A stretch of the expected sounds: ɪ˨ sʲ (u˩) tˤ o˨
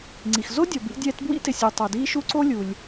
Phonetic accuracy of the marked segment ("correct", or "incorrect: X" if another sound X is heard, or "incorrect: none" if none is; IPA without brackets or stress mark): correct